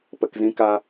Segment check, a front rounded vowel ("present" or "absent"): absent